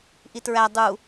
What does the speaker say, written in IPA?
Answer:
ʔitɹæ dˤu

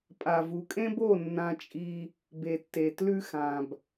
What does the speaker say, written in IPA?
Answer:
pʼa˨vu˨kʼẽ˦bo˦˨ nːã˦t͡ʃʼi˦ | be˨tːe˨ tlʉ˦ xã˨b

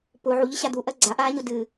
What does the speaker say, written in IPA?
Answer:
pʊ ʕuʎɨɕa d̪uʔɜ ɡ͡ǀaʔaːɲʊ dɨ

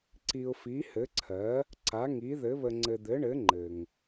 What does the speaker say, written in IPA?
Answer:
ǀi˨ʊ̯fi˩˥hɘ˩˥ǀʰɜ˩˥ | ǀa˩˥ŋi˩˥ðɘ˩˥ βə˨ŋ͡ǀɘ˨d̪ɘ˩˥ɳɘ˩˥ ŋ͡ǃɘ˨ŋ

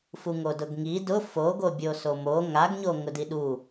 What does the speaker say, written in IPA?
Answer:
fuŋodʊɡŋi dʊ foɡobʲoso mo ŋaɡɲo ŋʊdiɗu

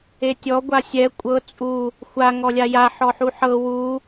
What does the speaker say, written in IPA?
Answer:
etʲɔ ɡʷasʲɛ kʷʼɤ t͡sʼu | xʷa ŋɔlʲaja ħɔħuħɤ wu

